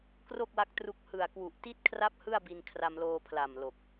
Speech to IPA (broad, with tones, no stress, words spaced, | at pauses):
kro˥˩k̚wa˦˥k̚tru˦˥k̚ hɯ˨˩a̯kwu˨˩ʔti˥˩t̚kʰra˥˩p̚ hɯ˥˩a̯bi˧n kʰra˧mloː˧pʰla˨˩m lo˨˩k̚